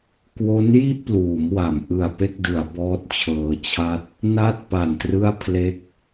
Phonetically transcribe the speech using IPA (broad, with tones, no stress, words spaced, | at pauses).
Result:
kwo˦˥nji˥˩ʔpluː˩˦mwa˩˦m ʔɯ˨˩a̯pe˥˩k̚dɯ˩˦a̯ bɔː˦˥t̚t͡ɕʰɤː˧t͡ɕʰa˥˩t̚ | na˦˥t̚ pa˨˩ntrɯ˥˩a̯pʰle˥˩k̚